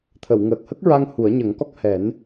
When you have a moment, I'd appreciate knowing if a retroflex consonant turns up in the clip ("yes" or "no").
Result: no